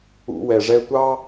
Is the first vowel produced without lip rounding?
no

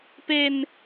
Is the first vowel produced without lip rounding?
yes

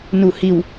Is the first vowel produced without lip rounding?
no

